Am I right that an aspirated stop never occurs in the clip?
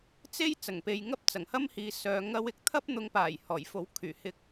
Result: no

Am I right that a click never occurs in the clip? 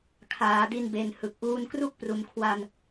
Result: yes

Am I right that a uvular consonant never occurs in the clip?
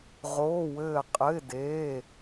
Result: no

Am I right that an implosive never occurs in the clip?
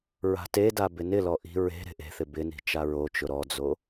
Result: yes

